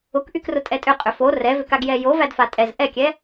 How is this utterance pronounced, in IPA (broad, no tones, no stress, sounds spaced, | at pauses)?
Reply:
ʊ k ʔ y k r ʊ tʼ ɛ tʼ ʏ qʼ ʏ f o r ɛ v ʏ k a ɡ j ɛ j o v æ d f a tʼ ɛ z ʔ ɛ kʲ ɛ